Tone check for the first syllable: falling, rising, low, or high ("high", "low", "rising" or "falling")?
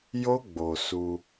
high